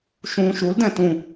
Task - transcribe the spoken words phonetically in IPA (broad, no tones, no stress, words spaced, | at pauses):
ʃũ ʃuldɛ̃ tũ